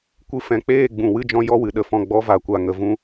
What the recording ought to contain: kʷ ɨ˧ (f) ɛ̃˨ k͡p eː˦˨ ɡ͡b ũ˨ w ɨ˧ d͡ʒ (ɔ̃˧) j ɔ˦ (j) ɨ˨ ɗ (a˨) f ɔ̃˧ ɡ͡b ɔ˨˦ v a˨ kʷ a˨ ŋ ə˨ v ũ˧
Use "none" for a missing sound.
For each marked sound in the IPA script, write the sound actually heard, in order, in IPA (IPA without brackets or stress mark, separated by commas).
f, ɔ̃˧, w, ə˨